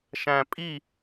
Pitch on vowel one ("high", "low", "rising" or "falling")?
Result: low